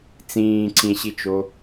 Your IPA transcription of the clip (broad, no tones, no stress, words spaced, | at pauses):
t͡sĩːǀʰĩɕit͡ʃo